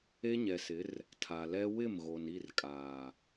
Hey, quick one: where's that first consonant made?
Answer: palate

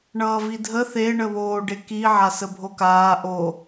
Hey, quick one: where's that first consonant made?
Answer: retroflex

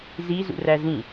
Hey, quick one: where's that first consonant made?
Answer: tongue tip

